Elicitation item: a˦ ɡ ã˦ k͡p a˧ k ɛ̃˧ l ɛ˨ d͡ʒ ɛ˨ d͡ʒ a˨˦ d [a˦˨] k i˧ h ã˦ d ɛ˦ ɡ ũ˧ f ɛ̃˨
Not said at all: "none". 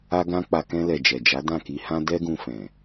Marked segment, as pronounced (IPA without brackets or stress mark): ã˦˨